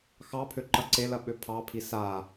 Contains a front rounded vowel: yes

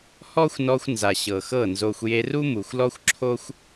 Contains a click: yes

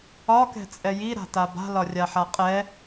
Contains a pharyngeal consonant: yes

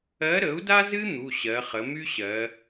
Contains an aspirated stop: no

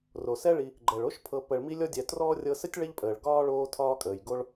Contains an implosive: no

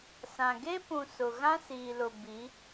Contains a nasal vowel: yes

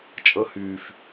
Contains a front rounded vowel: yes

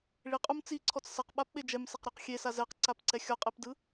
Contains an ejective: yes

